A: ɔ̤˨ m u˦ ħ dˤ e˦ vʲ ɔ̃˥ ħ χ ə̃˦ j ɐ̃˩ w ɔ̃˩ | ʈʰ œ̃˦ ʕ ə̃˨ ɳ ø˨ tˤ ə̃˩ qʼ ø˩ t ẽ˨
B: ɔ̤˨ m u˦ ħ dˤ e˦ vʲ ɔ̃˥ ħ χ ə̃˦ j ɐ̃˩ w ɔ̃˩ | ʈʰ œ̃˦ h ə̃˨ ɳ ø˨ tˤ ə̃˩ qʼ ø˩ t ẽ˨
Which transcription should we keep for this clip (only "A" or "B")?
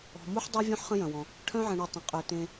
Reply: A